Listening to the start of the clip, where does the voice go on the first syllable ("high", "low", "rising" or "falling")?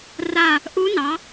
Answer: falling